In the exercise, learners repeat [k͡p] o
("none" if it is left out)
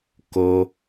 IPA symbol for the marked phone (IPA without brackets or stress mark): k